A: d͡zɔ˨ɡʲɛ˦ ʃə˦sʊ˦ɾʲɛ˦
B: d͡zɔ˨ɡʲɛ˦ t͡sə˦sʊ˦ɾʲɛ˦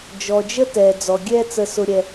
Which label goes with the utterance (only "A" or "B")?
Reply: B